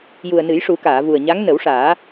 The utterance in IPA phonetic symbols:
ju˨˩ə̯nɨ˨˩˦jʂu˨˩˦ kaː˨˩˨vu˨˩ə̯ ɲa˧˥ŋ nə˨˩˦wʂaː˨˩˦

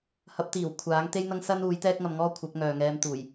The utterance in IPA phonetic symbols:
hɐ˨˥p̚t̪iː˨˩w kʷʰaː˨˥ŋ t̪e˥jn̪ɐ˥ŋ sɐ˥nuː˨˥j t̪ɛː˥k̚ŋɐ˧mŋɔː˥ kʷʰɐ˨˥p̚ŋœː˨ŋɛː˧m t̪uː˨˩j

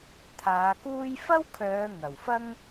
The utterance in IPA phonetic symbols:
t̪ʰaː˨˧kuː˥j fɐ˥wkʰœː˨˧ ŋɐ˨˩wfɐ˥ŋ

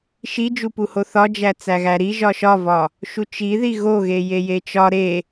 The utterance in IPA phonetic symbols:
ʃid͡ʒupuho θɒd͡ʒæ t͡sæɣæɾi ʒɒʃɒvɒ | ʃut͡ʃiði ɣoɣe jejet͡ʃɒ ɾe

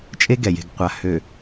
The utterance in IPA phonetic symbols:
t͡ʃʼe˦ɡɛ˨je̤˨ɡqʷa˨ hø˨

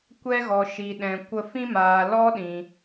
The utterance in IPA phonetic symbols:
kʷɛ˦ɣɔ˧ʃi˧ɗɛ̃˧ kʷə˦ fĩ˦maː˧lɔ˦ɗĩ˧

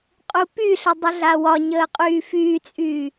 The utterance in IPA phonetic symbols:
qʼupyɬə dˤəɮawɒɲəː qʼyːfyːt͡sʼyː

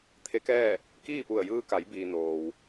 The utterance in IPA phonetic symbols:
t̪ʰe˧˥kɛː˥˨ | kiː˥˨pu˧˩ə̯ jɯː˧ka˩˧jbiː˩ noː˩w

